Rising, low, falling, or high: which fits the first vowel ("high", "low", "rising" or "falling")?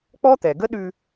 high